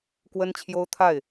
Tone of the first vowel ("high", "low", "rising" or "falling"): high